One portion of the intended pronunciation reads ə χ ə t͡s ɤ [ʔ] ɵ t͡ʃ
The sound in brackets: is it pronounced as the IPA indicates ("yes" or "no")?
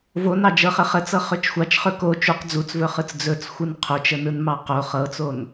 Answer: no